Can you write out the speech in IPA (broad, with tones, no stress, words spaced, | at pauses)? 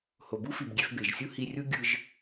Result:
ho˨bu˦fi˨bɡʲe˧f be˨ʒsʲu˦hi˧rʲu˦ ɡʲɯ˧ʒ